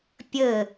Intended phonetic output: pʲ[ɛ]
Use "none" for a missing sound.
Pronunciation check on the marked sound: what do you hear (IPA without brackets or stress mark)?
ɘ